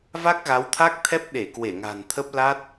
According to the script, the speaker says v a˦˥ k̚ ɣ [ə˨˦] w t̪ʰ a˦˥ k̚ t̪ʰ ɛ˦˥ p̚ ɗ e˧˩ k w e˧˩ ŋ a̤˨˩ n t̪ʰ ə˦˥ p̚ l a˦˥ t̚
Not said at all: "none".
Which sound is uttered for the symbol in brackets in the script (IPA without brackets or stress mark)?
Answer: a˨˦